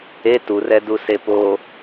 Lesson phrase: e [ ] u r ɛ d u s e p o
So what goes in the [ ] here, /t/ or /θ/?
t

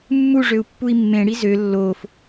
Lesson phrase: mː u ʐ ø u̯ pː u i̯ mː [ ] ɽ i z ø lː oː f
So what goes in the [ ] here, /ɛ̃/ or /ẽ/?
ẽ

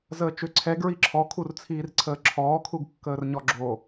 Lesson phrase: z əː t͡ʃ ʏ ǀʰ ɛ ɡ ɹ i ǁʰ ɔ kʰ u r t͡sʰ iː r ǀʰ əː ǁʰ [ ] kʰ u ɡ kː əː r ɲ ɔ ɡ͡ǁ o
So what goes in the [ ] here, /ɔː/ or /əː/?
ɔː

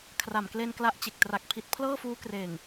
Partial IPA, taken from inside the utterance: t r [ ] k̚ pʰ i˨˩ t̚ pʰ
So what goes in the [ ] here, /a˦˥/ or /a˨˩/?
a˨˩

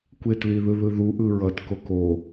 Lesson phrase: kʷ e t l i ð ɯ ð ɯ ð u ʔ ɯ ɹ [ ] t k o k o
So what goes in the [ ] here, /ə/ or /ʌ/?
ʌ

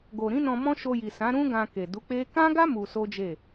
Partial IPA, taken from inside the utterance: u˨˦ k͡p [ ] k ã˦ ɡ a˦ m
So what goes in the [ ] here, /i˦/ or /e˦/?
e˦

